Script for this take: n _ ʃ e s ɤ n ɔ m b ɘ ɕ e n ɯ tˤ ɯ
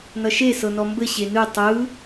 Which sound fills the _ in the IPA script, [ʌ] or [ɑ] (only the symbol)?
ʌ